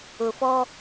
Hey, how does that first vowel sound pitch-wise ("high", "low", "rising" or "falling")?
low